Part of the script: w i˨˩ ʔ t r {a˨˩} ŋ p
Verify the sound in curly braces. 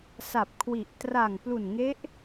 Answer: correct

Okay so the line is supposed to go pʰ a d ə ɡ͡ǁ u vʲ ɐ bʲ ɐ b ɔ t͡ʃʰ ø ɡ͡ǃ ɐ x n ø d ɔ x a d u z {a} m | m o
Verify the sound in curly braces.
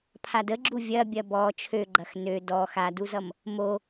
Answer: incorrect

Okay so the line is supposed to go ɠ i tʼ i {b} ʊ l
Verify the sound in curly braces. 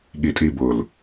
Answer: correct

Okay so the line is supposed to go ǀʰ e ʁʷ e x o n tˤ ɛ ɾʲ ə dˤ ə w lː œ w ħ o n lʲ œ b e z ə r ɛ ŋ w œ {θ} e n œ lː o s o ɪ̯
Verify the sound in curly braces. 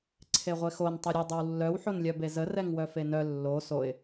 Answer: incorrect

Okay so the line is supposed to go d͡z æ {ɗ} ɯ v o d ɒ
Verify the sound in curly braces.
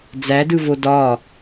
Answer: incorrect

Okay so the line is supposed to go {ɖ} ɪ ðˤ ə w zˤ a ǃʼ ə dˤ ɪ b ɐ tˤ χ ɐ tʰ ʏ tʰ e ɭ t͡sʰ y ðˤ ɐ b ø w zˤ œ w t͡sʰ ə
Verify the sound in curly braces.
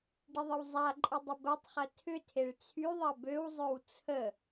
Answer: correct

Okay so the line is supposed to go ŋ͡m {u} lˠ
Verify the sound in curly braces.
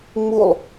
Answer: correct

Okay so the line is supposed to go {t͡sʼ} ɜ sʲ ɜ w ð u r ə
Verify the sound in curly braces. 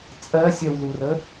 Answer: correct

